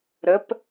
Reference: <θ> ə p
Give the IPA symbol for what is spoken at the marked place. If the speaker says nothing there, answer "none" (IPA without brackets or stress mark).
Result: ɾ